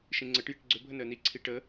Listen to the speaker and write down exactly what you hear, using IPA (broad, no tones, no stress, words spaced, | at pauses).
ʃĩŋ͡ǀəʈ jiʈɡ͡ǀʏ bʱənəːni ǀʰiʈəː